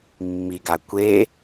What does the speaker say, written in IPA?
mː i ɡ a kʷ e

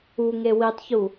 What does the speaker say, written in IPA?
u ŋ e w i tˤ ç u

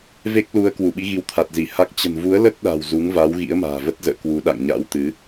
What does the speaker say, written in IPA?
v e˦˥ k̚ l u˨˦ ə̯ k w u˧˩ ɓ i˨˦ ɣ i˨˦ w t̪ʰ a˨˩ t̚ z i˧˩ h a˦˥ k̚ t͡ɕ ə̤˨˩ n v u˨˦ ə̯ l ə˦˥ t̚ ɗ a̤˨˩ w z u˨˦ ŋ v a˨˦ w ɣ ḭ˧˥ ə̯ m a̤ː˨˩ v ə˦˥ t̚ z ə̰ː˧˨ k w u˨˦ ɗ a̰˧˨ ŋ ɲ a̰˧˥ w t̪ ɨ˨˦

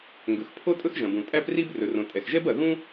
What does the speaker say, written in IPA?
ŋ ɡ ɵ˩ x pʰ o˥ tʼ ɵ˥ x ʒ ɐ̃˩ b ũ˩ tʼ æ˥ p r i˥ b r ɵ˩ r õ˩ tʼ ɛ˩ x ʒ ɛ˥ b ɐ˩ ɣ ũ˥

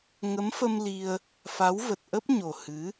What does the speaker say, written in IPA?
ŋ ə˨˦ m f ə˧ m l i˧ ə̯ | f a˨˦ w v ə˨˩ t̚ ʔ ə˦˥ p̚ ɲ o˨˩ h ɨ˨˦

